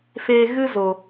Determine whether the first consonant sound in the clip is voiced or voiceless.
voiceless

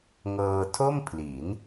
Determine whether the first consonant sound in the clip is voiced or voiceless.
voiced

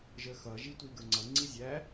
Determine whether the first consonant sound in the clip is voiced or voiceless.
voiced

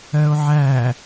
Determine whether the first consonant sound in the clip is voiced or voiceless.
voiced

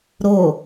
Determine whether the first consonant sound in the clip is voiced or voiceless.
voiced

